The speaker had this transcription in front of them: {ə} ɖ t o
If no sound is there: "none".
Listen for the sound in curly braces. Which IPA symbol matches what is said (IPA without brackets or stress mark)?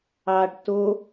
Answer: ɑ